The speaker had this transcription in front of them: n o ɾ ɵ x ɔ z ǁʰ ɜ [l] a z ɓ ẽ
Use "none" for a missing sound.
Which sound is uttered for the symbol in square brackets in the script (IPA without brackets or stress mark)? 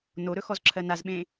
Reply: n